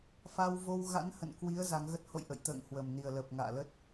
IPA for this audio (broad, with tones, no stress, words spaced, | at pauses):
fa˧wvo˧wɣa̰˧˥nhə̰˧˨n kwi˨˦ə̯ za˨˦ŋɣə˦˥t̚ ho̰˧˨jʔə̰˧˨j t̪ə̰ː˧˨ŋhwə˨˩mni˨˩ə̯ləː˨˩p̚ ŋa̰ː˧˨ lə˦˥t̚